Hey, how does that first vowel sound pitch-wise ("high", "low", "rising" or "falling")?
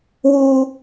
high